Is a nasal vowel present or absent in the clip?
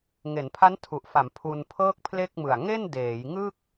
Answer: absent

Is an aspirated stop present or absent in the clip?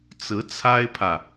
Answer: present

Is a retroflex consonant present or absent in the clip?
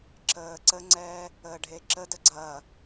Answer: present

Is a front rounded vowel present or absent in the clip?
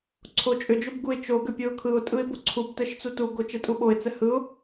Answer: present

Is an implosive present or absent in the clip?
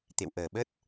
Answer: present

